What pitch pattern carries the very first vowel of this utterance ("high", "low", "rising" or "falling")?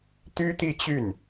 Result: high